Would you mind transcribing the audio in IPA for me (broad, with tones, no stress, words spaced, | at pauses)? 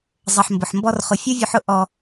zˤʌ˨ħ mbʊ˨ħmbɔ˦rχʊ˧ fʲu˦vʲu˧ħ ʊ˧ ʔɔ˧